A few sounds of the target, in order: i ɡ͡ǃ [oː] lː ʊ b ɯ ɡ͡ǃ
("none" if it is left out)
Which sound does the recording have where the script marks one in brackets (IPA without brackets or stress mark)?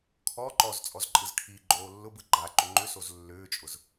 oː